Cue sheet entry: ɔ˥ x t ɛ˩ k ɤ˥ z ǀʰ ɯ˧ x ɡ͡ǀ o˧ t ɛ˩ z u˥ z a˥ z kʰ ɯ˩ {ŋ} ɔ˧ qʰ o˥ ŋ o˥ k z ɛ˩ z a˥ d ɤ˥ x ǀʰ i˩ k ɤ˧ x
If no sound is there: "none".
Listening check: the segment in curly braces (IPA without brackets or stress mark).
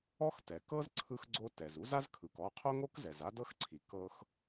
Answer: k